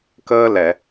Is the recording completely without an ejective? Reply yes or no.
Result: yes